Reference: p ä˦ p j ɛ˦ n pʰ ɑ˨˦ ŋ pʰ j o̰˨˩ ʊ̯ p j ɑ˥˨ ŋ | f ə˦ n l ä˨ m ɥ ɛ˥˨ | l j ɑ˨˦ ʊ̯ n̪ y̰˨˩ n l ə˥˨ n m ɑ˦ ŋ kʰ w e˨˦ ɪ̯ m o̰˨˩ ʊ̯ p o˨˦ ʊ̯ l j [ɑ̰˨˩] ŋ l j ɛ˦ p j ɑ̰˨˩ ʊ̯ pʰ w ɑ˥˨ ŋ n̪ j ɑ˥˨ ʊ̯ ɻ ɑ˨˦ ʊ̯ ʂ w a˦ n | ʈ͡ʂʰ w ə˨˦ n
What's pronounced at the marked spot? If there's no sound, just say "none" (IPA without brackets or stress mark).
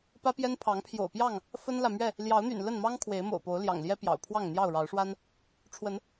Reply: ɑ̰˨˩